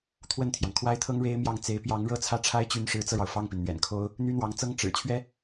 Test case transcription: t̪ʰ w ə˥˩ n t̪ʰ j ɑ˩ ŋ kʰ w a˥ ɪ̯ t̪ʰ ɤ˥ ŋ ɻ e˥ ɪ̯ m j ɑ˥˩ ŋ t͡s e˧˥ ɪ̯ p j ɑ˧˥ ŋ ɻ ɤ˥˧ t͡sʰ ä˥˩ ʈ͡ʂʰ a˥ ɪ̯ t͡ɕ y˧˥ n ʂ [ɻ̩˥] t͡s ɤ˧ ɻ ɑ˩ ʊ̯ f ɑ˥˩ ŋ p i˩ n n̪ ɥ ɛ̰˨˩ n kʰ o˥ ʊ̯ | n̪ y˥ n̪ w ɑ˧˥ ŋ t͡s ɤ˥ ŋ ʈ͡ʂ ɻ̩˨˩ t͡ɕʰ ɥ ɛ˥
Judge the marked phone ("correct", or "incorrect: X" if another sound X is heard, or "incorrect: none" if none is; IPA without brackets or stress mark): incorrect: ɻ̩˧˥